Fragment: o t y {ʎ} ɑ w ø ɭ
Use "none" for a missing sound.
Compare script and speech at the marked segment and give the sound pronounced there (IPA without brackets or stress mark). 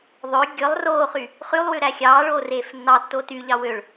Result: ʎ